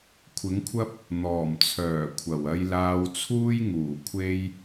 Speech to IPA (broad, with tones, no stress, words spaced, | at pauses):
kʷʰɪ˨˥ŋkʷʰɐ˥p̚ | n̪ɔː˨˩mt͡sʰœː˨˩kʷʰɐ˨˩w ɐ˧jlaː˧wt͡sʰuː˥jŋuː˨˩ kʷʰe˧j